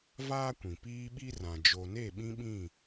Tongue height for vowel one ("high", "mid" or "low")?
low